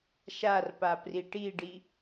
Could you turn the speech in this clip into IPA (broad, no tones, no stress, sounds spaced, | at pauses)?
ʃ a r p a p r i ʈ i ɖ i